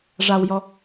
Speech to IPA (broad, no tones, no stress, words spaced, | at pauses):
ʐawjɔ